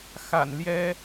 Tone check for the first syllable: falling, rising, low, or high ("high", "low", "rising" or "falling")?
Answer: low